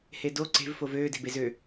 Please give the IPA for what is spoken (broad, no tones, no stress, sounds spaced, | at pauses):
h e d o ǀ e̤ v f o v øː d e̤ b e z ø